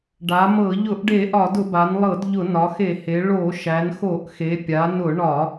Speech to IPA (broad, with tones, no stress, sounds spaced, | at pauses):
ɖ a˩˧ m ɤ˧˩˧ ʎ ʊ˧˩˧ ʔ ɖ e˧˩˧ ʔ ɒ˧˩˧ d ʊ˧˩˧ b a˩˧ n lˠ ɤ˧˩˧ d ʎ ʊ˧˩˧ n ɒ˩˧ x e˧˩˧ h e˩˧ ɭ o˧˩˧ ʃ æ˩˧ n x o˧˩˧ ʔ x e˩˧ pʲ a˩˧ n ʊ˧˩˧ ɳ ɒ˧˩˧